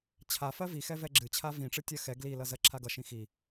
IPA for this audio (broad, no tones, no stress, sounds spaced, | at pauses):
t͡ɕʰ a f ɜ v i x ɛ v ɛ ɡ͡ǁ ɨ t͡ɕʰ a v ĩ ʈ͡ʂ ɨ tʲ ɜ x ɛ ɡ l i l ʌ z ɜ ǁʰ a ɡ ʌ ʃ ĩ x i